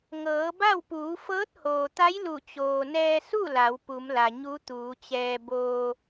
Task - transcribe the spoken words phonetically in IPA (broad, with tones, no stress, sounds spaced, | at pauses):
ŋ ɤː˩˧ b a˥˨ w p uː˩˧ f ɤː˧˥ t̚ h oː˩ t̪ a˧˥ j l u˧˩ t͡ɕ oː˩ n ɛː˧ s u˥˨ l a˩˧ w p u˩˧ m l a˩ ɲ u˧˥ t̪ uː˩˧ t͡ɕ ɛː˧ b oː˧